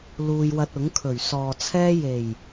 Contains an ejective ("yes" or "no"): no